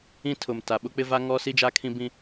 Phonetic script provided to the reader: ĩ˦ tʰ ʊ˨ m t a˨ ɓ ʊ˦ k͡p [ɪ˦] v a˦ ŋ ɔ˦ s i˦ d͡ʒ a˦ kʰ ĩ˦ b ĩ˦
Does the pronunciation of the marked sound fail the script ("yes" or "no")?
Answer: no